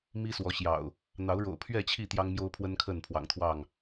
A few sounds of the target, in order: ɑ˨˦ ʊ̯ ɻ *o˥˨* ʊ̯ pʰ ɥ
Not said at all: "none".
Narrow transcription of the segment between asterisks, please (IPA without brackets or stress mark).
o̰˨˩